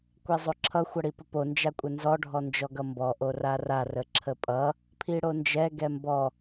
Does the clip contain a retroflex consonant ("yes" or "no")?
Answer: yes